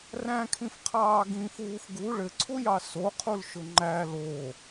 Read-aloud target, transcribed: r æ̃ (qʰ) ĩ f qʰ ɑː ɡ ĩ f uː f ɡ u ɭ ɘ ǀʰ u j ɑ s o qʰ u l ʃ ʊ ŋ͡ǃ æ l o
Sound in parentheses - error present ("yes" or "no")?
yes